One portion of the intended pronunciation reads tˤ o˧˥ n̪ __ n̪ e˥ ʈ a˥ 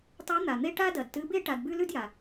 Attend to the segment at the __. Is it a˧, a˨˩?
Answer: a˨˩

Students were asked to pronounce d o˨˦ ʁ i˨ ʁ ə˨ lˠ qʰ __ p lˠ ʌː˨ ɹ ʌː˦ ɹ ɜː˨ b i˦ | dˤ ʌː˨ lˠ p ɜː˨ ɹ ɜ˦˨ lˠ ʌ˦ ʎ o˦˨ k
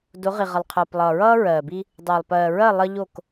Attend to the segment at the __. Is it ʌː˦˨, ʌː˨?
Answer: ʌː˨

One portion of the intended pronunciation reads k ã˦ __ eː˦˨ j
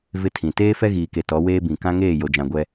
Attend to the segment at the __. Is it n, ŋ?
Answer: ŋ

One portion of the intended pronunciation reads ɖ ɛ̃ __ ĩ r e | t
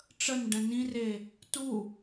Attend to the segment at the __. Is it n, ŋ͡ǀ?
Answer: n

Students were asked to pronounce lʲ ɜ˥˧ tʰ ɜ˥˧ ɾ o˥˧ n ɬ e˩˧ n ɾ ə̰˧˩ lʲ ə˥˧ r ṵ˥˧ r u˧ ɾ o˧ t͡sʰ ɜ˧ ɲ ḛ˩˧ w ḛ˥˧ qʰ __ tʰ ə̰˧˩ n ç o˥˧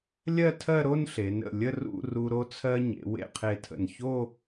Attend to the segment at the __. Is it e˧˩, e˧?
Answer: e˧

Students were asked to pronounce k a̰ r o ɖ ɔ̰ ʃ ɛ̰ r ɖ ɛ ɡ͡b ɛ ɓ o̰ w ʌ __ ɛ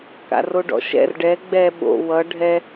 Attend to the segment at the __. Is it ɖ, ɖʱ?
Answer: ɖʱ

